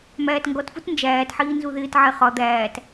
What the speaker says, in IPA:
mæːtŋɡɔtfut nd͡ʒæːtħiː nzuðɪːtʕɛ χɒ d̪æːt

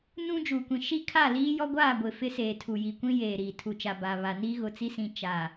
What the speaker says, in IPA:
nũ˦ d͡ʒuː˨kʷĩ˨ ʃi˦ kʰa˦˨liː˦ jɔ˦ɡʷaː˦˨ɡʷɪ˨ fɪ˦seː˨tʰu˨ji˨ kʷĩ˦jeː˨ɾiː˨ tʰu˨t͡ʃa˨ ba˨ βa˨niː˦ ɣʊ˨t͡si˦sĩ˨ t͡ʃa˨

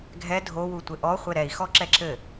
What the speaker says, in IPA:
ɡʱɛ dʱowu tʷɘʔɔχʷɘ ɾɛi̯xɔ ǁɛǁɘ

